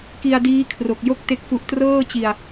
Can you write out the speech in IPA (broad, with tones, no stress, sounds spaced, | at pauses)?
k i˧ a̯ d iː˦˥ kʰ r o˨˩ k̚ j o˥˩ k̚ t e˥˩ k̚ f u˦˥ ʔ t r ɤː˥˩ t͡ɕ i˧ a̯